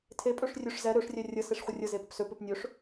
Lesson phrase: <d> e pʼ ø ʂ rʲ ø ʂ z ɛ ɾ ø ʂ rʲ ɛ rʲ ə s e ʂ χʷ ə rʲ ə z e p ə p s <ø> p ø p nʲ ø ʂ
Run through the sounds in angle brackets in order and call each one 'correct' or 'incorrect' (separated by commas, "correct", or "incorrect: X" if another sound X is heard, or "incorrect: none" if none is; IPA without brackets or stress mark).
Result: incorrect: tʰ, correct